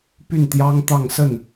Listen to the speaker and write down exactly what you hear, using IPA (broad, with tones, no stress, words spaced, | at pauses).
py˥˩nt̪jɑ˥ŋt̪ɑ˥˧ŋ sə˥˩n